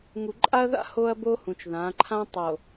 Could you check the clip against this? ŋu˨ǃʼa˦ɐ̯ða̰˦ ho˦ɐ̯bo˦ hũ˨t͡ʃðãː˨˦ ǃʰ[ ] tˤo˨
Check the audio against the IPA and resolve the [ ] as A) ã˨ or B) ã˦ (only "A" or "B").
B